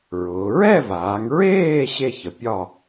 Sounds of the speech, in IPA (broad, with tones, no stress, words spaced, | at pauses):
ɹʊː˩˧ ɹɛ˥˨vaː˩˧ŋɹeː˥˨ ɕe˥˨çə˩˧pʲɒ˥˨